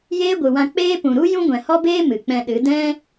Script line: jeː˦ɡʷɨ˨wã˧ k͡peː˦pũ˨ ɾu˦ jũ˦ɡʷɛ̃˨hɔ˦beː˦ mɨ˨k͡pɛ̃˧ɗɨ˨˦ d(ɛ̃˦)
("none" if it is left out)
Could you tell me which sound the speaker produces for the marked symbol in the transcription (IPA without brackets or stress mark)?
ɛ̃˦